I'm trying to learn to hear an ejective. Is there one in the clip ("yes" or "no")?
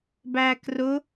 no